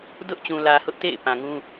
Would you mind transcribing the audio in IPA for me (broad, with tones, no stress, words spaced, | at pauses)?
dʊ˦ʔ t͡ɕũ˨lä˨ hʊ˦ʔtḛ˦˨ɪ̯ pã˨ŋũ˦